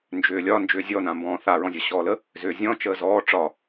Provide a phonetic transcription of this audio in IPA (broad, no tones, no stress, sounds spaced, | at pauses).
n d͡ʒ ʏː lʲ ɒ n d͡ʒ ʏː zʲ ɔ n ã m b ɔ̃ː θ a ɹ ɔ̃ zʲ ɒ ɕ ɔː l ə | z ʏː zʲ ɔ̃ t͡ʃ əː z ɔː ʈ͡ʂ ɒ